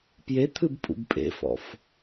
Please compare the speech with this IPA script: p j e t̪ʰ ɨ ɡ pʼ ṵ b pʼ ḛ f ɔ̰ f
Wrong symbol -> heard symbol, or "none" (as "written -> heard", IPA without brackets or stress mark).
ɡ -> b